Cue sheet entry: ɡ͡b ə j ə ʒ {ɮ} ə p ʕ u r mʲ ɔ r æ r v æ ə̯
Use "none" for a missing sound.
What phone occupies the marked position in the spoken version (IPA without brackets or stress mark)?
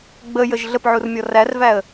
ɮ